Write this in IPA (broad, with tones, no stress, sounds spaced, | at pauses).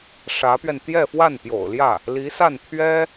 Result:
ʂ ä˧˥ p ɥ ɛ˧ n t̪ j ɛ˥˧ f w a˥˩ n p j o̰˨˩ ʊ̯ l j ä˥˩ | l i˧˥ s a˥˩ n t̪ʰ ɥ ɛ˥